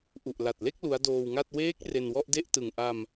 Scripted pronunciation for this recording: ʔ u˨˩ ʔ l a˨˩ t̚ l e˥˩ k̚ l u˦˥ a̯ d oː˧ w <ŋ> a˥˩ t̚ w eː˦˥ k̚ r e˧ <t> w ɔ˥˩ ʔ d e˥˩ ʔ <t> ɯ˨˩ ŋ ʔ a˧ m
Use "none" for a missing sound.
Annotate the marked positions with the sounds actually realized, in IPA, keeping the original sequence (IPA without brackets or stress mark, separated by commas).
ŋ, n, t